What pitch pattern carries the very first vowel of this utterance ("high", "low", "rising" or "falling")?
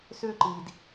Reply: high